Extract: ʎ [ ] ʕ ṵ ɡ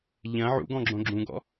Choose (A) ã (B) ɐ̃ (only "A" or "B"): B